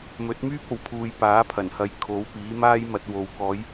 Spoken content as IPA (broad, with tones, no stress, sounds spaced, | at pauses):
m ɵ˨˥ t̚ m yː˥ p̚ o˨ w pʰ uː˨ j p aː˨˥ pʰ ɐ˨˩ n h ɐ˨˧ j kʰ o˨˥ w p iː˨˥ m aː˥ j m ɐ˧ t̚ w o˨ w k ɔː˨˧ j